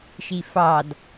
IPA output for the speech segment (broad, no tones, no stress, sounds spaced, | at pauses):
ʃ i f ɑ d